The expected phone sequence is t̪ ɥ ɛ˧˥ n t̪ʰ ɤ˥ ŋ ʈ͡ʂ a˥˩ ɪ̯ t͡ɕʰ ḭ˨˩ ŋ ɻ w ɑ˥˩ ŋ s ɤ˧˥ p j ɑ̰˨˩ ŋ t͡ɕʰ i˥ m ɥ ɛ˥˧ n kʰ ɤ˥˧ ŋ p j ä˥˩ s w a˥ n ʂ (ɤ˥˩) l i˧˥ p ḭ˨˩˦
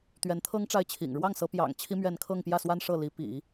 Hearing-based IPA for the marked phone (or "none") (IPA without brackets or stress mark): ɤ˥˩